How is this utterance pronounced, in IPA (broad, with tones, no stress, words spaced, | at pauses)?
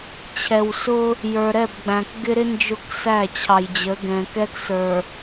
t͡ɕʰɛ˨wsʊ˦ | jə˞˨ɾɛ˦˨bɡ͡bæ̃˨k ɡɪ˦ɾɪ˦ nd͡ʒʊ˦ksæ˦˨ t͡ɕʰɑ˨jd͡ʑə˨˦ɡɛ̃˨ kɛ˦ksə˞˨